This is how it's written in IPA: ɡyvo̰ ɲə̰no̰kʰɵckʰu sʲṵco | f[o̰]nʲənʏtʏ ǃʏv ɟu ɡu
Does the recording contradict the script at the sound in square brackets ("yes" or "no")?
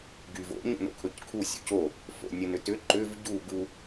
no